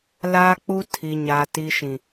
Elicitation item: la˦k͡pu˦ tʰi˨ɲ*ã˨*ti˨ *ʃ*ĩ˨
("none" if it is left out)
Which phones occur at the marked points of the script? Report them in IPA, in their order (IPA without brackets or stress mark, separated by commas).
a˨, ʃ